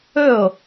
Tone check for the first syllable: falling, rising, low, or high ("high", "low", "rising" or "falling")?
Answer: falling